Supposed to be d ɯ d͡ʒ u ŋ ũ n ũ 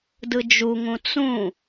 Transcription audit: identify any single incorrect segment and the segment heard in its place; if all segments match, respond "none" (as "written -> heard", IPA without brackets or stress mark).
n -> t͡s